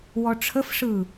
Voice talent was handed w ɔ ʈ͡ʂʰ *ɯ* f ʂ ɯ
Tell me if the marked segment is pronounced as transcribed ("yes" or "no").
no